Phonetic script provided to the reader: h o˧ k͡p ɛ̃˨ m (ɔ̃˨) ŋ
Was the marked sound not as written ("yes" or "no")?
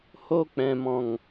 no